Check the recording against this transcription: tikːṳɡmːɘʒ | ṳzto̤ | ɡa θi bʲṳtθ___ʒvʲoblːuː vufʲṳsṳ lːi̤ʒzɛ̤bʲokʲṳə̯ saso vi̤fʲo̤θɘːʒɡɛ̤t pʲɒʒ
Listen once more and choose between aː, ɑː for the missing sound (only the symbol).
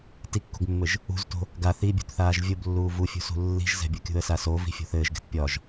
aː